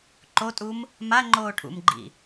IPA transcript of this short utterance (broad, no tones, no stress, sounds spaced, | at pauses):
ǃ o tʼ u m | m a ŋ͡ǃ oː ʈʰ ṵ m ɡ͡ǃ ḭ